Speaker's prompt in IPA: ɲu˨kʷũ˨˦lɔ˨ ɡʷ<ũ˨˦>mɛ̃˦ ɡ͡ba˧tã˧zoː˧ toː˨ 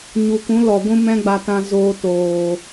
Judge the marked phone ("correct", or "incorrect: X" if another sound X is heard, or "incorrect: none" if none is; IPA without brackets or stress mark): incorrect: ũ˦